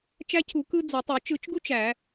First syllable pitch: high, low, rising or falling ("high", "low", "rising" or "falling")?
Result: high